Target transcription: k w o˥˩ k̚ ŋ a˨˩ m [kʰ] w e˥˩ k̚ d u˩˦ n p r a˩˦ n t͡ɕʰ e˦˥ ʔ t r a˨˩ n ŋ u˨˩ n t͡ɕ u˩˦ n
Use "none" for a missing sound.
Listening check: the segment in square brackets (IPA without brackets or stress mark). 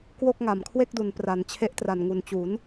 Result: kʰ